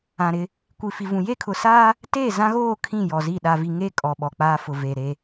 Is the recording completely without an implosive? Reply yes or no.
no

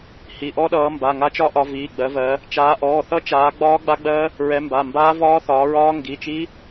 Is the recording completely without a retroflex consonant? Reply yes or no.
yes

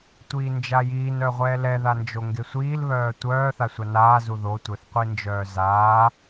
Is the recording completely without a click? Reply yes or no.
yes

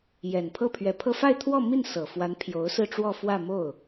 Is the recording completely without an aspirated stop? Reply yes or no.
no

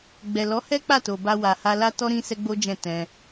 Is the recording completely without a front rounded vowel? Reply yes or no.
yes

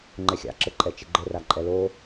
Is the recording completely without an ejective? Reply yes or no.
no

